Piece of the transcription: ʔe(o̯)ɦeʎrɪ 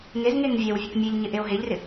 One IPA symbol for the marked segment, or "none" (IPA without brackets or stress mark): o̯